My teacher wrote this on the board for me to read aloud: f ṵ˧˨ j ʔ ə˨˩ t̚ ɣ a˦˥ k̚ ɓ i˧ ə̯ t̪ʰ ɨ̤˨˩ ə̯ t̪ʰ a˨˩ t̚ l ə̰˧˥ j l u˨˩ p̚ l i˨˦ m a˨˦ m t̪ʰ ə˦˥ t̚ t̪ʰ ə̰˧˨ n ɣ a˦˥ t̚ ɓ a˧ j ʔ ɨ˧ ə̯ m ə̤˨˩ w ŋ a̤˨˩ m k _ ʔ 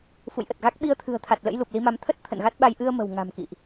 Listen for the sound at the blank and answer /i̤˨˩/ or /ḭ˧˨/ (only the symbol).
ḭ˧˨